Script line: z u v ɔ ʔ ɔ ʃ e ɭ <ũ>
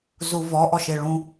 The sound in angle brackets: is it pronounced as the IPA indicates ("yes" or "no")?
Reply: yes